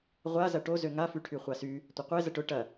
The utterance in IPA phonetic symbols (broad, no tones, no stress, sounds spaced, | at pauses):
ʁʷ a z ɐ ʈ o z ø ŋ a f y ʈʰ y χʷ a s y | tʷ ə qʷ e z ə ʈ ʊ ʈ ɐ